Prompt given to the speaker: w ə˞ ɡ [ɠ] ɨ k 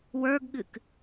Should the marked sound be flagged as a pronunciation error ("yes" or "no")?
no